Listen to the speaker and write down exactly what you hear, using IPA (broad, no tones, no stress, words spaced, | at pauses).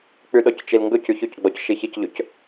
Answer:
k͡pyɗɔct͡ʃilŋɡɵ cyçɵcɡ͡bɔc ʃiçicʎɵc